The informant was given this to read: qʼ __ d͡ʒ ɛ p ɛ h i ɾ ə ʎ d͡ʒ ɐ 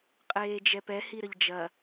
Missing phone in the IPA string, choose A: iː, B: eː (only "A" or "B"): B